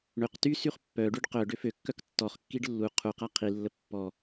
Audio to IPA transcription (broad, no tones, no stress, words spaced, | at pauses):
ɳøq ty syχpːœɖyɖ qœ ɖøføkːœk tːɔχkːiɖ lːu qʰuqa qʰilːə pːɔ